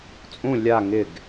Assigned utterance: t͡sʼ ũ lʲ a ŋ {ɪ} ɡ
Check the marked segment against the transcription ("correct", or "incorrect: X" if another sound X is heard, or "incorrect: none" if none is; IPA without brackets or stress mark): correct